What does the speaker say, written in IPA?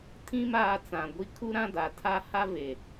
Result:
tʰ ĩ˦ m aː˦ t͡s ã˨ ɡʷ i˦ kʰ u˦ ɾ ã˦ d a˨ tʰ a˦ h a˦ v e˨

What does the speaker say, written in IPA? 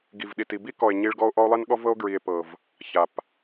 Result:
ɡ i˨ v ɗ i˨ t i˨ b i˦ k ɔ˨ e̯ ɲ i˧ ɭ ɡ ɔ˦ o̯ ʔ ɔ˦ o̯ lˠ i˦ n ɠ ɔ˦ v ɤ˦ o̯ ɡ ɹ i˨ e̯ p ɤ˨ v | ç a˨ p

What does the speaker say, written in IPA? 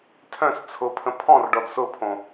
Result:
tʰ œ̃ s t͡sʰ ʊ pʰ ə̃ pʰ ɔ̃ r ɖ ɔ d s ʊ pʰ õ

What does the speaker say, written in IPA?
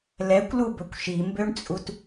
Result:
l ɛ kʷ l u b ɵ kʷ ʃ i m b ø ɳ t͡sʼ u t

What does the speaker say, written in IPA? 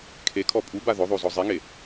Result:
kʰ e kʰ ɔ pʼ u b a ð ʊ ðˤ o z ɔ zˤ e ŋ e

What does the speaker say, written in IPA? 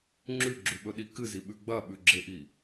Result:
ŋ͡ǁ ʉ ɡ͡ǁ ʉ ɓ ɵ ɗ i k ɨ z i ɓ ʉ ɡ͡b ɐ ɓ ʉ ɡ͡ǁ e ʔ i

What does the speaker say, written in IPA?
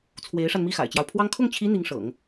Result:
t͡sʰ w e˧˥ ɪ̯ ʂ a˧ n m i˥˩ x a̰˨˩ ɪ̯ t͡ɕ j ɑ˦ ʊ̯ pʰ w ɑ˥ ŋ kʰ ʊ˥˩ ŋ t͡ɕʰ i˧˥ n̪ i˧˥ ŋ ʂ ɤ̰˨˩˦ ŋ

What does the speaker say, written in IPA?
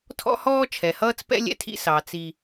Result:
tʰ ɔ̰˦ h ɔː˦ t͡ʃʰ ɛ˨ h ʌː˦ t͡s p ɛ̰˦ lʲ ɛ̰˦ tʰ ḭ˦ s ɑ˨ t͡s i˨

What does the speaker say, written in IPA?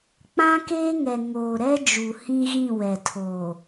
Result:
k͡p ã˦ k eː˦ ŋ ɛ˨ ŋ oː˨ ɾ ɛ˦ d͡ʒ u˨ h ĩ˦ ɣ ĩ˦˨ w ɛ˨ tʰ oː˨

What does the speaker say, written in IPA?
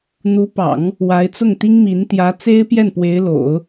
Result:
n̪ u˧˥ p ɑ̰˨˩˦ ŋ | w a˧˥ ɪ̯ t͡s ʊ˥˩ ŋ t̪ i˥ ŋ m i˧˥ n t̪ j ä˧˥ t͡s e˥ ɪ̯ p j ɛ˥˩ n p w e˧˥ ɪ̯ l o̰˨˩˦ ʊ̯

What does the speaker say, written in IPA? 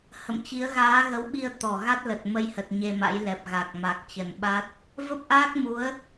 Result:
h ə̰˧˨ m t͡ɕ i˨˦ ə̯ ɣ aː˨˦ ɣ ə˨˦ w ɓ i˧ ə̯ t̪ ɔ˨˩ ɣ a˦˥ t̚ l ə˨˩ t̚ m ə˧ j h ə˨˩ t̚ ɲ e˧ m a̰˧˥ j l ɛ˨˩ p̚ ɣ a˨˩ k̚ m a˨˩ k̚ t͡ɕ ə˨˩ n ɓ a˦˥ t̚ | v ə˦˥ p̚ ʔ aː˦˥ k̚ m u˨˦ ə̯

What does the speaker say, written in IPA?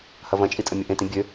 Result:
h ɐ v ɐ̃ t͡ʃʼ i tʼ ɐ mʲ ɐ ʔ ẽ t ĩ bʲ ø

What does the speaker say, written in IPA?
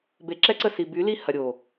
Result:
b e˨ ǁ ɛ˦ ǀ ə˦˨ s i˨ b y˨˦ l i˦ h ɐ˨ ɾʲ o˨

